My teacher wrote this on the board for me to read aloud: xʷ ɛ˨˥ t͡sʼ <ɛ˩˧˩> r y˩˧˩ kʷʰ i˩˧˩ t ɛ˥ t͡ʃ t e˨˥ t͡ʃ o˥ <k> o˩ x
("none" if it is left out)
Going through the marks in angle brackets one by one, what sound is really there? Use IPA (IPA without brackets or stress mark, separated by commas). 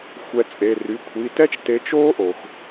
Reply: e˩˧˩, ʔ